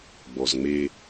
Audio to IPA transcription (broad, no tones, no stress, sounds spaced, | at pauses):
ɡ͡b ɔ z ŋ͡m e